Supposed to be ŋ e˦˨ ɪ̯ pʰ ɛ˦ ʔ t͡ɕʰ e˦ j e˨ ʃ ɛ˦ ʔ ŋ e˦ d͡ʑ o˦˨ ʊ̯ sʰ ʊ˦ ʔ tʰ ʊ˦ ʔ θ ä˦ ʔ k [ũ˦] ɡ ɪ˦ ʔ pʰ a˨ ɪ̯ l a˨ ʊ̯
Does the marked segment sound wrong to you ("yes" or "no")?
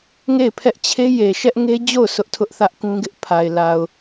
no